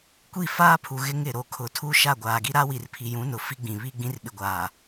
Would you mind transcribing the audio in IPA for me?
kʷ i˦˨ f aː˦ pʰ u˨ ɣ ɪ˦ ŋ ɪ˨ ɾ o˨ kʰ ʊ˨˦ tʰ u˦ ʃ a˦˨ ɡʷ aː˨ ɡ i˦ ɾ a˦ w i˨ r pʰ i˨ j ũ˨˦ n ʊ˨ f i˦ ɡ͡b ĩ˨ β i˦ ɡ͡b ĩ˦ r ɓ ɪ˨ ɡʷ aː˨

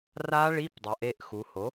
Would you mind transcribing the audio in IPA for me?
r a˦˥ ɭ i˧˥˧ p dˤ ʌ˩˧ ʔ e˥˩ ʔ x u˩˧ h o˩˥

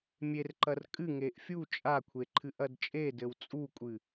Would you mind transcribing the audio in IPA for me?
mʲ e r ǃ ɐ r kʼ ɨ ŋ e ʔ fʲ u t͡ʃʼ a kʷʰ e ǃʰ ɨ ʔ ɐ d t͡ʃʼ e d ɘ w t͡sʼ u kʷʼ ɨ

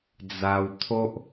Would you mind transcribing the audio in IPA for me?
d͡z a˧ w t̪ʰ o˦ ʔ

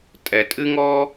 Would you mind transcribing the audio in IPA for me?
tʼ ɛ˩ tʼ ɨ˥ ŋ ɔ˥

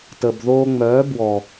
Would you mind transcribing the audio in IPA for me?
t ə˨ b ð oː˧ ŋ͡m œː˨˦ b w ɔ˨

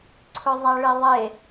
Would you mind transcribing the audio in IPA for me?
ǀʰ ɵ zˤ a ɭ i ðˤ e

